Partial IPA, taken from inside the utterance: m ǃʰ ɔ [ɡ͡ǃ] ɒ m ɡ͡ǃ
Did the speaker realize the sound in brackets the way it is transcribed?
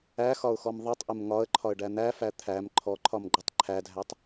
no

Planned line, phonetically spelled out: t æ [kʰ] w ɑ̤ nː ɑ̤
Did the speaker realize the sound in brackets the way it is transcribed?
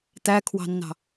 yes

